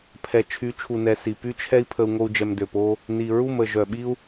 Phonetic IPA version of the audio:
pʰɛ˨t͡ʃʰy˨˦t͡ʃʰu˨nɛ˨ si˨py˦t͡ʃʰɛ˦i̯pʰə˧u̯ ŋo˦u̯d͡ʒɛ˧mdø˨po˦ | ni˨ɹu˦˨mə˨ ʒœ˨ɓi˦u̯

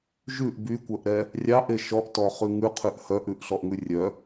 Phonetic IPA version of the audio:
ʒʉʔ bykʷœʔɾɛ | rʲɑʔe ʃɔʔtɔχʉ ŋʉqʰʉʔ hœʔʉʔɬɔʔŋʉ rʲœ

